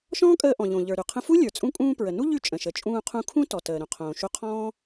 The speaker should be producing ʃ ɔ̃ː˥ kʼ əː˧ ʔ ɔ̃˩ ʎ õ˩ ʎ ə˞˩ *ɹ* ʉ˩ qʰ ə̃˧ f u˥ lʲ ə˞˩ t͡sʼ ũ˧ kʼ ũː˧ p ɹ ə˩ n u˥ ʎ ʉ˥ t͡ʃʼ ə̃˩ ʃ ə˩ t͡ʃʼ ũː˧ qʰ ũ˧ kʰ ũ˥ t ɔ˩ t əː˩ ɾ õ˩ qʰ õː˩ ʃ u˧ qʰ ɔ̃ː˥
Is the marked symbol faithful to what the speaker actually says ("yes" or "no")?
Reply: no